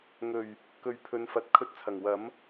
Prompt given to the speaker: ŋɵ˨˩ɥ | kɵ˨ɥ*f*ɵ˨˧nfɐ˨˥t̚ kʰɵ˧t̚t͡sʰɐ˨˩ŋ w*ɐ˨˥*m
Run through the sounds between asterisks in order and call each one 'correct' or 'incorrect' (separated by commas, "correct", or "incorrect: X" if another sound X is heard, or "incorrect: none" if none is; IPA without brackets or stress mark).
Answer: incorrect: pʰ, correct